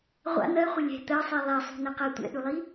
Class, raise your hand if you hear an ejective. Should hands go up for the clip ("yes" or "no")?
no